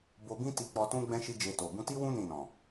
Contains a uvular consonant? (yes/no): no